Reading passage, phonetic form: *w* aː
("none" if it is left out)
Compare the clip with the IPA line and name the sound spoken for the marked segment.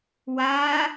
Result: w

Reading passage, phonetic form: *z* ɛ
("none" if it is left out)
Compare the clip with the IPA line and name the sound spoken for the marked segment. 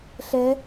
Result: ɬ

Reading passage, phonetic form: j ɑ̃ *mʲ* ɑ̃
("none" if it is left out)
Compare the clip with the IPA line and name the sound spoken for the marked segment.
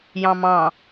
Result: m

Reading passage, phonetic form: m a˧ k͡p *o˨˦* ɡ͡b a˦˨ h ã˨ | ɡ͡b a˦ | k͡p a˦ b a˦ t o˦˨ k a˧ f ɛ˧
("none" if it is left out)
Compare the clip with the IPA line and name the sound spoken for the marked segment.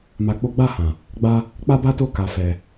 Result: o˦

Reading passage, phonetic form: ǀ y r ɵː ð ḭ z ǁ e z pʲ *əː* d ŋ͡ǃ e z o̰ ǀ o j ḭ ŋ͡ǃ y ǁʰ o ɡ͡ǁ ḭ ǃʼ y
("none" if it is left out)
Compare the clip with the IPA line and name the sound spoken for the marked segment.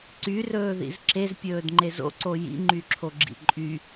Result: ɵː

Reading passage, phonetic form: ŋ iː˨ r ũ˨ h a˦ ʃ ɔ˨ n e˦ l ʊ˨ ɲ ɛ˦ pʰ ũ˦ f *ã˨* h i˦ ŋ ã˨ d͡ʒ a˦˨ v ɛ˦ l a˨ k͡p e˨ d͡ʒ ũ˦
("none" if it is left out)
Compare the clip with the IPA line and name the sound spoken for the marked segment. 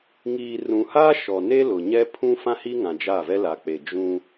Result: ã˦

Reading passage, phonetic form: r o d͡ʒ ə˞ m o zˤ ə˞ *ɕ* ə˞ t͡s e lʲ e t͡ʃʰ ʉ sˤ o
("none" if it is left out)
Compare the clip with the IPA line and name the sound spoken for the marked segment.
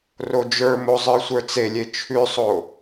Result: sʷ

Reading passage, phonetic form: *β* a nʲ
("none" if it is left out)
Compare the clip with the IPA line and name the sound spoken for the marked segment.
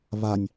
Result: β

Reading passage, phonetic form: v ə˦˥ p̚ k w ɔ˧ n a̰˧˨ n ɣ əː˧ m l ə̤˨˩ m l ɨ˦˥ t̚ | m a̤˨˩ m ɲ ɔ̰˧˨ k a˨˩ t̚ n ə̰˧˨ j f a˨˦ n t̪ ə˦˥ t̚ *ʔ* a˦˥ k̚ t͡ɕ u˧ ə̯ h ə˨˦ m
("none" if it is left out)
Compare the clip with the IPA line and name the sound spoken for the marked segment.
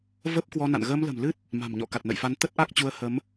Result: ʔ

